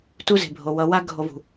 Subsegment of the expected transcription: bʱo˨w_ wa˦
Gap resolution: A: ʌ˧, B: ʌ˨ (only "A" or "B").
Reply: A